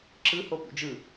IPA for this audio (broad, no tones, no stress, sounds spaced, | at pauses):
ǁ ɯ h o p ṵ d͡ʒ ɯ